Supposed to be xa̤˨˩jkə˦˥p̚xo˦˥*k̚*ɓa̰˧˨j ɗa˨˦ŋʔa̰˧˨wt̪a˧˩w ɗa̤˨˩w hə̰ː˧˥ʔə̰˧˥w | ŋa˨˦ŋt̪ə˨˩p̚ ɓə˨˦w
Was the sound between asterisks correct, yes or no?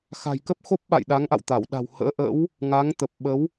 no